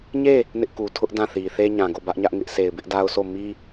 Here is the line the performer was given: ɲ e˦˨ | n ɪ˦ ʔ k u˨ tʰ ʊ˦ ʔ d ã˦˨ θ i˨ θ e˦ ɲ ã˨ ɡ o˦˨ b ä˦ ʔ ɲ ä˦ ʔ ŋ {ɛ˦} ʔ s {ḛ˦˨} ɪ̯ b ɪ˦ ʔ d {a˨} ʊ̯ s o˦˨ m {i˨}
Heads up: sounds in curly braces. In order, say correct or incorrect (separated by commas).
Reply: incorrect, incorrect, incorrect, incorrect